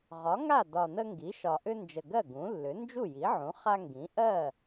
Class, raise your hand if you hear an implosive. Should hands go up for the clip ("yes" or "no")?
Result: no